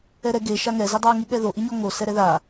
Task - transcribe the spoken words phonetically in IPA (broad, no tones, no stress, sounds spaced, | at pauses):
ɛ ɾ ɛ ɡ e ʃ a ŋ ɛ z i dˤ ɑ ŋ i ɠ ɛ ð o ʔ i ɲ ɔ ŋ o s ɛ ɾ ɛ ð a